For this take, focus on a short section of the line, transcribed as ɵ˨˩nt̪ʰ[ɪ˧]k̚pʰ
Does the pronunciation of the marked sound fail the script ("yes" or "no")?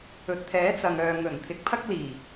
yes